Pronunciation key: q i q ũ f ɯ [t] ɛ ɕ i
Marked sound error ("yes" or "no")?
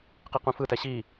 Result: no